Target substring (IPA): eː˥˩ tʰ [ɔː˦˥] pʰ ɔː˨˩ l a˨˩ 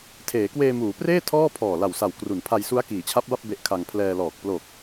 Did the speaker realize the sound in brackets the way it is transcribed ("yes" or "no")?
no